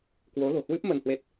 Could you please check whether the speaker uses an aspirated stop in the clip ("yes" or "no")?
no